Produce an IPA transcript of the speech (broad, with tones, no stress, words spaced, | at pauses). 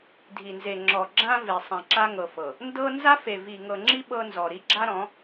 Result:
dʱi˨nze˨ ŋ͡ǁɔ˨ɡ͡ǁã˦ ve˨ sˤã˨ǁa˦ŋɤ˨ fɤ˨ | ndɤ˦ nza˦fe˨ vi˨ŋɤ˨ŋ͡ǁi˦ ɓɤ˦ nzɔ˨ɾi˦ ɡ͡ǁa˦ɾɔ̃˨˦